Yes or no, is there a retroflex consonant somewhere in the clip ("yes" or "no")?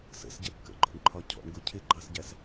yes